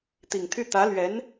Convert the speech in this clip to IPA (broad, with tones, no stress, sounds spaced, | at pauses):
t̪ i˨˩ ŋ t̪ʰ y˥˩ t̪ ä˧˥ l ɥ ɛ˧˥ n